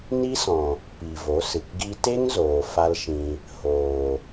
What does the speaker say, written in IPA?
n i˦ s ɔ̃˨ | p i˨ v o˨˦ s ɨ˨ k ɡ i˧ t e˦ ŋ z oː˨ f a˦ l ʃ ĩ˧ | h oː˨

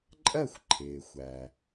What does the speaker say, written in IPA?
ǃʼ ɜ˥˨ xʷ ǃʰ ɪː˩ xʷ æ˩

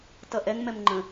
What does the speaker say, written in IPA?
t ʌ ʔ ɛ ŋ m ɛ m ŋ͡ǃ ə̃

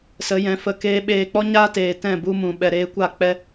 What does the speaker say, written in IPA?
s ə˨˦ j ɛ̃˨˦ f ə˧ k eː˦ ɓ eː˧ k͡p ɔ˦ ɲ aː˦ t eː˨ t ɛ̃˦˨ b u˧ m ũ˨ ɓ ɛ˨ ɾ eː˧ kʷ a˦˨ k͡p ɛ˦

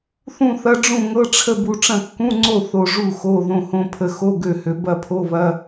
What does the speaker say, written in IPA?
θ ũ˥˨ θ ɐ˧˥˧ ɖ͡ʐ ũ˥˨ ŋ ɤ˧˥˧ ʈ͡ʂʰ ə˥˨ b u˧ ʈ͡ʂ ɐ̃˥˨ kː ũ˧˥˧ ŋ͡ǀ o˥˨ θ o˧ ʐ u˥˨ x o˧˥˧ ð õ˧ h õ˧ pʰ ə˧ x o˧˥˧ ɡ ø˥˨ h ø˧ b ɐ˥˨ pʰ o˧˥˧ β ɐ˧˥˧

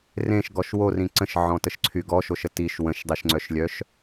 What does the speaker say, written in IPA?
r ẽ ʃ ɡ ɔ ʃ w o r ĩ ǀ ə̃ ʃ ʕ ɔ̃ t ə ʃ ǀʰ y ɡ ɔ ʃ o ʃ ə t i ʃ w ə̃ ʃ dˤ i ʃ ŋ͡ǀ œ ʃ lʲ œ ʃ

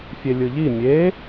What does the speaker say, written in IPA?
fʲ e lʲ ɯ ʎ i mʲ e

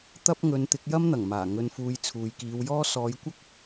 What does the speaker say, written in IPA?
t̪ ɐ˧ p̚ ŋ ɵ˨˧ n t̪ ɪ˨˥ k̚ j ɐ˥ m n̪ ɐ˨˩ ŋ m aː˨˩ ŋ ɵ˨ n f uː˨ j t͡sʰ uː˨ j k iː˨˧ w j ɔː˥ s ɔː˨˧ j kʷ ɐ˥ k̚

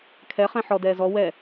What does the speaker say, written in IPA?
kʰ ɛ χ ɛ̃ ħ ɔ d ɛː z ɔ w ɛ

